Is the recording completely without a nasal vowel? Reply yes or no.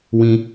no